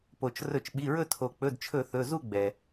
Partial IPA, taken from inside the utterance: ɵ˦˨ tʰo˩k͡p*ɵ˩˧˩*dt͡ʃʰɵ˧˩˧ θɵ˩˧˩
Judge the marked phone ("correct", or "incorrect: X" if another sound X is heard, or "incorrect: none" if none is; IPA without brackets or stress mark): correct